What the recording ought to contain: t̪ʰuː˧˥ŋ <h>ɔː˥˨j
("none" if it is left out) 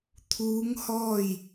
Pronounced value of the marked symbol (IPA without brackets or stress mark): h